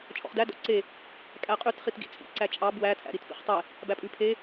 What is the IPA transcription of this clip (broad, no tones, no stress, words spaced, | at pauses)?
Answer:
t͡ʃʼɔ̰χdæ dɔ̰ǀe | kʼæqʼʉt χitɡḭt͡sʼḭ ǀæt͡ʃʼɑ bwæ tʰæ̰ɾitpḭχtˤe | bæpʼʉ pʰe